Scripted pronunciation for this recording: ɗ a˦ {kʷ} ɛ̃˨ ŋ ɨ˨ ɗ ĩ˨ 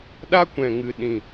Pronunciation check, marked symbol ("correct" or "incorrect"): correct